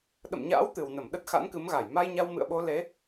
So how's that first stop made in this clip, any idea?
implosive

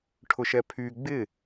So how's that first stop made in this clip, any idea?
aspirated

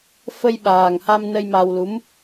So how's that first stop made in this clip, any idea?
implosive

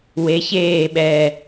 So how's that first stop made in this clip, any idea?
implosive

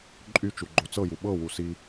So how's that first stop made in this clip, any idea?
click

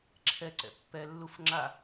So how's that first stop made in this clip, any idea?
click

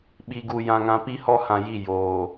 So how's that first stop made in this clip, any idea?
implosive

